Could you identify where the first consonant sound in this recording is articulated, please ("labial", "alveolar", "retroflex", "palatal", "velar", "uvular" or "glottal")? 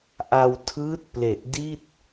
glottal